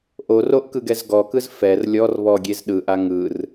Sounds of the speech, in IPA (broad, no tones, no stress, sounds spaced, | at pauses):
ʔ o r o ʔ k ɯ ɡ ɛ z ɡ ɔ k ɯ z f ɛ r lʲ ɔ r β ɔ ɡʲ e z ɗ ɯ ʔ a ŋ ɯ r